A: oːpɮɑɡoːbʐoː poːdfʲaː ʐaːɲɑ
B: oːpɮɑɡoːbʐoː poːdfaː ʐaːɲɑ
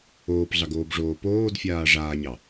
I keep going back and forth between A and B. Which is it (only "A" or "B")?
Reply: A